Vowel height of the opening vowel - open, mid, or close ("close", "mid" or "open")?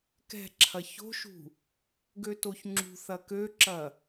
mid